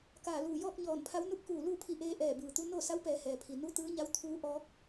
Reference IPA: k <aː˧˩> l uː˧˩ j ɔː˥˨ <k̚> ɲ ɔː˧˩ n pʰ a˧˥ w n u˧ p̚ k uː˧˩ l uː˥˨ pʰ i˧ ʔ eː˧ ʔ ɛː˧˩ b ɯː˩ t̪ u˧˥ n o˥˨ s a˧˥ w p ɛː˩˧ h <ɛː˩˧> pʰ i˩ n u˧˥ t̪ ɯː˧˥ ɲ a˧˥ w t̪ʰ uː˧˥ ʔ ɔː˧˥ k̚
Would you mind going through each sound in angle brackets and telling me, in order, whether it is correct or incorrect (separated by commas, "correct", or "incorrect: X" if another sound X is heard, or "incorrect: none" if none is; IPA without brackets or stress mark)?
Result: correct, correct, incorrect: ɛː˩